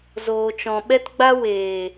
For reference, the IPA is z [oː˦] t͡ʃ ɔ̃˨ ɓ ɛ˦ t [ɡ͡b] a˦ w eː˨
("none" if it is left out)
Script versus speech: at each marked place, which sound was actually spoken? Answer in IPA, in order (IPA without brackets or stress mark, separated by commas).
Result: oː˨, ɡ͡b